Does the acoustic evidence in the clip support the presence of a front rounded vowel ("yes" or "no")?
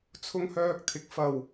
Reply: yes